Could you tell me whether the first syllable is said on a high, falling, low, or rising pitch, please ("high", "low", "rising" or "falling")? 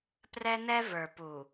high